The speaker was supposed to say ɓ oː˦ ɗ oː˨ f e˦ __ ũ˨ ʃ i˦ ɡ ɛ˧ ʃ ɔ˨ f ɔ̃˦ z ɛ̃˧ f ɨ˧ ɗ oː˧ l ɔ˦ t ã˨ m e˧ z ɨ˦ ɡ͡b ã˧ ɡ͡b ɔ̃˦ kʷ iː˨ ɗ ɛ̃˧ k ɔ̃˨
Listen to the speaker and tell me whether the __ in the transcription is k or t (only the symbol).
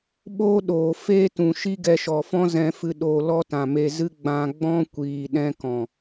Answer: t